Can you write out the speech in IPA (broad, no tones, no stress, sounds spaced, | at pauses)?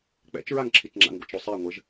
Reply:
k͡p ɛ̰ t͡ʃ ɹ a ŋ ǁʰ i t͡ʃ ŋ͡ǁ a̰ ŋ ɡʷ a̰ t͡ʃ ɾ o sˤ e ŋʷ ɘ ʒ